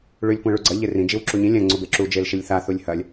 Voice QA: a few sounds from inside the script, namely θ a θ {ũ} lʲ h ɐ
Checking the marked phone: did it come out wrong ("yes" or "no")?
yes